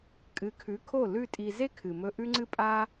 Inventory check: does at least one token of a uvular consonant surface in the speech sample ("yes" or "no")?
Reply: no